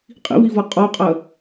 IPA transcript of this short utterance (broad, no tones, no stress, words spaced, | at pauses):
qʼḭvivʌ qʼɒqʼɜ